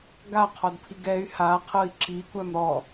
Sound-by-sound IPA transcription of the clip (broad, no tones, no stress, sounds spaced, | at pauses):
ɡ a qʰ ɔ d pʰ i ɡ ɛ y̯ h a qʰ ɤ i̯ ǁ i kʷ æ m ɾ ɔ